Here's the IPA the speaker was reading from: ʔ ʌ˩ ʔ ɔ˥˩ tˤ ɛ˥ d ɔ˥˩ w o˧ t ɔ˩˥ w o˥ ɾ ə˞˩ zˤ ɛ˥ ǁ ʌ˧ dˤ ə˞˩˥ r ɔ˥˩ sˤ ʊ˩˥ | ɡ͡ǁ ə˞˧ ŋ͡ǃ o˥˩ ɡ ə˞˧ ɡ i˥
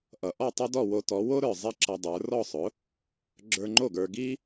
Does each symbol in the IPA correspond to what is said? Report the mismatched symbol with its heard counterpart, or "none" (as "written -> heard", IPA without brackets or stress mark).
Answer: none